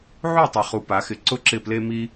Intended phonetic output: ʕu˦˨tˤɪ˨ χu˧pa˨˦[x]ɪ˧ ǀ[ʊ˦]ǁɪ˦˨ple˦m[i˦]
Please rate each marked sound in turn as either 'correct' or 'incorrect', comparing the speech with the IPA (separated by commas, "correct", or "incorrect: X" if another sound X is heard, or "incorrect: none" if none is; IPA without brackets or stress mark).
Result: correct, correct, correct